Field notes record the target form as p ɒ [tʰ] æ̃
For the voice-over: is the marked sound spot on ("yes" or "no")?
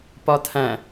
yes